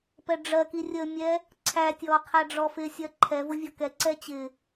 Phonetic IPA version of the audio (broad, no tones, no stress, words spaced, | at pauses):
pɛɖ͡ʐɜki rʲəmʲɛ | ǀʰætʲɔ qʰæɖ͡ʐɔfɪsʲɜ ǃʰɛvʊ vʲɔkɛǀɛ t͡ɕɪ